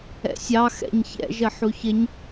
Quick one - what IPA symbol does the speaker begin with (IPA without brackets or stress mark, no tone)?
ɛ̰